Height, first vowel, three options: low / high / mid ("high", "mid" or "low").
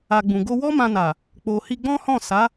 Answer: low